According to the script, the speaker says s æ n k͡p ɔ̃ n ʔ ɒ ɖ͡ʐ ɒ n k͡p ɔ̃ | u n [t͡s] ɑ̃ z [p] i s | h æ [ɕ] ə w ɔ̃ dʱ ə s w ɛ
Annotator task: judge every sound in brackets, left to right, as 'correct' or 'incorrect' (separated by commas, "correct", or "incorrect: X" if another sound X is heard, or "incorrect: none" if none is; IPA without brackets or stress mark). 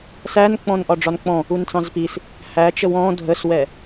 correct, correct, incorrect: t͡ʃ